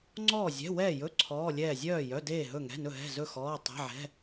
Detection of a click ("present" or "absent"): present